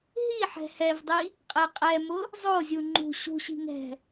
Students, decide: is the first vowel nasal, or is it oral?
oral